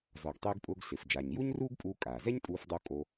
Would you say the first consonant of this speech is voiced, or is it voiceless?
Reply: voiced